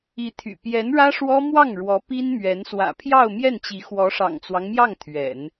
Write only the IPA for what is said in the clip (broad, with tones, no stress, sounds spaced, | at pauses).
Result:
i˧˥ t̪ʰ y̰˨˩ p j ɛ˧˥ n ɻ ä˥ ʂ w ɔ˥ m w ɑ˥˩ ŋ ɻ w ɔ˧˥ p i˥ n m ɥ ɛ˧˥ n s w ä̰˨˩ pʰ j ɑ˥˧ ʊ̯ m j ɛ˥˩ n t͡ɕ i˧˥ x w ɔ˧˥ ʂ ɑ̰˨˩ ŋ t͡s w ɑ˦ ŋ m j ɑ˥˩ ŋ t̪ʰ ɥ ɛ̰˨˩˦ n